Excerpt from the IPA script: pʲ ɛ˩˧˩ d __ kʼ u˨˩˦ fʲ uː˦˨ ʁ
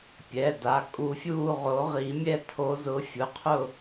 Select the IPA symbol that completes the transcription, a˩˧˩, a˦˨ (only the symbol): a˩˧˩